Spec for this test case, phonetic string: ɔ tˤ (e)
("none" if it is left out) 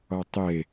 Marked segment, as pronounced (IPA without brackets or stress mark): e